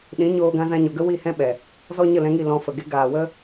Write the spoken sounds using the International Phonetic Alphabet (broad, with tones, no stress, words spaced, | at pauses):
ɗĩ˨˦ ɲoː˧ɡã˧zã˧ɲo˨ ɡə˦ wi˦˨hɛ̃˦ɓɛ˨ | zɔ˦ɲə˦˨lɛ̃˧ŋi˦˨ lɔ̃˧fə˨ ɡe˧ ɡaː˨wə˦